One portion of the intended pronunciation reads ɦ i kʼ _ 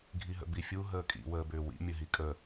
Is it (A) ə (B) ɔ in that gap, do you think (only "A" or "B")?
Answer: A